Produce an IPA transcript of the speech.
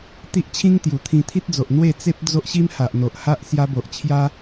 t̪i˦ʔt͡ɕʰĩ˦ŋ t̪ju˨˩t̪ʰĩ˧t̪ʰi˦t̚d͡zo˨ʔ n̪we˥˧t͡se˦p̚ d͡zo˦ʔɕi˦mha˨ʔ n̪o˨ʔha˦ʔ sja˧bo˨ʔ t͡ɕʰja˦

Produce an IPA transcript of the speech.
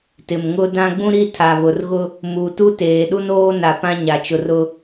tɪ˨mŋʊ˦dã˦ ɡ͡bũ˦ɾi˦ tʰa˨βʊ˨rɣʊ˦ | mu˨ tu˦teː˨ɗu˦n oː˦na˨ pã˦ɲa˨t͡ʃʊ˨r ʊ˦

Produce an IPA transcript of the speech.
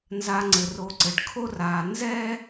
nza˨ ŋ͡ǀɘ˩ro˨ǀɘ˩ɖ kʰo˦raː˨ nzɛ˥

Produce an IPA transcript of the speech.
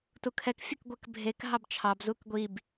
tukʰɛk fʲəkɡʷək bʱek ɦɑbt͡ʃʰɑb zukɡʷib

